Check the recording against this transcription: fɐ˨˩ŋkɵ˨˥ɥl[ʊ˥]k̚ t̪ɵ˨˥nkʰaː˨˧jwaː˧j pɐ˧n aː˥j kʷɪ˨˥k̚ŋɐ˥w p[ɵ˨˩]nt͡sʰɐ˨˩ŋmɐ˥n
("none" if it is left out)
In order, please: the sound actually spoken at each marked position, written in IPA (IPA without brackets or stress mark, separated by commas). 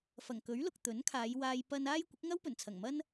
ʊ˨, ɵ˨˩